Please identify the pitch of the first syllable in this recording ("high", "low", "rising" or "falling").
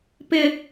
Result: high